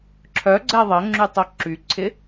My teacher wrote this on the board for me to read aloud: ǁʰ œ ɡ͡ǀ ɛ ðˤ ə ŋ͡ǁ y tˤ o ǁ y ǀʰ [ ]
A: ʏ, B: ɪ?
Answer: B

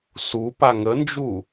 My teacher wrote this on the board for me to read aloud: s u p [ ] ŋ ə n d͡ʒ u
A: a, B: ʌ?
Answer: A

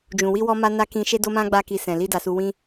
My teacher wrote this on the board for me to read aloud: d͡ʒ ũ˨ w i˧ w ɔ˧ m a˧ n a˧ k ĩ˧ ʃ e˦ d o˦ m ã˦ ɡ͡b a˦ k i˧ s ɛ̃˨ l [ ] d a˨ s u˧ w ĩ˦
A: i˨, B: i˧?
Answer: B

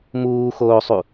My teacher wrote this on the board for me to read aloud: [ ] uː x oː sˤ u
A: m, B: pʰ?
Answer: A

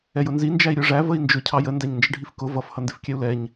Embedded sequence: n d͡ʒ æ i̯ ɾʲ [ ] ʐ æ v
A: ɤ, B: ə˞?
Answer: B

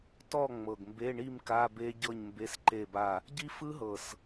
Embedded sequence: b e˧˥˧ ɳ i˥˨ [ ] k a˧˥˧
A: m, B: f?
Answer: A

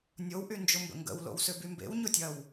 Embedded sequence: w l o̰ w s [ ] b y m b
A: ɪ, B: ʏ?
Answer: B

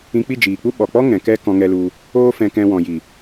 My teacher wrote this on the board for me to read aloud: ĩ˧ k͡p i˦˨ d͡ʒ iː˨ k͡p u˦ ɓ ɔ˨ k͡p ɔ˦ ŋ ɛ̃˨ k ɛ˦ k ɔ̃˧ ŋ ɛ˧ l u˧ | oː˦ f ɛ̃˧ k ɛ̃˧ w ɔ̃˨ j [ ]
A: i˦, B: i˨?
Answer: B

